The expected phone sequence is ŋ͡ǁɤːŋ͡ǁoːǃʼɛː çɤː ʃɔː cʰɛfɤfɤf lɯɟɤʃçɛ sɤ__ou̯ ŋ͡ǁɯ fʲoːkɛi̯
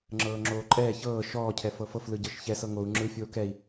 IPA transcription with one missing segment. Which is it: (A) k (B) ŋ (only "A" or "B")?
B